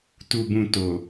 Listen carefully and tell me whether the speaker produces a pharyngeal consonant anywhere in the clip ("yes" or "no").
no